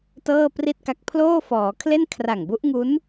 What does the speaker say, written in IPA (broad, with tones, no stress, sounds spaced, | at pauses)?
t ɤː˥˩ p r i˥˩ t̚ k a˦˥ k̚ pʰ l oː˥˩ f ɔː˩˦ kʰ l e˥˩ n kʰ r a˨˩ ŋ b u˦˥ ʔ ŋ u˦˥ n